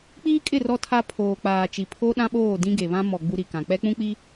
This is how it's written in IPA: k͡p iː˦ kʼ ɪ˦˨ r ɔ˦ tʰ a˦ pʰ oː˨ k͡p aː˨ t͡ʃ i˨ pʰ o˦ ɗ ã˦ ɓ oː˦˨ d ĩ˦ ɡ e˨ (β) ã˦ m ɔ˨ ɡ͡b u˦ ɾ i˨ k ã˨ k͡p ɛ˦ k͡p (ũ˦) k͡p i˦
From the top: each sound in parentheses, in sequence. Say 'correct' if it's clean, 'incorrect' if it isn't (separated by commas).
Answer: correct, correct